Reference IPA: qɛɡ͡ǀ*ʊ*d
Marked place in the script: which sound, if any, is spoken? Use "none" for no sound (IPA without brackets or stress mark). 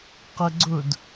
ʊ